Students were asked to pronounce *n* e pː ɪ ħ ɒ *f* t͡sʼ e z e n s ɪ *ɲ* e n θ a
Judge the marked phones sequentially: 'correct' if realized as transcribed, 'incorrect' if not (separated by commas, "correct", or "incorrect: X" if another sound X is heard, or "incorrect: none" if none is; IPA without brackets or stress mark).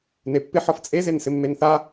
correct, correct, incorrect: mː